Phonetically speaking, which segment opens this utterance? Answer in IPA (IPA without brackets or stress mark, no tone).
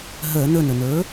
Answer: ɦ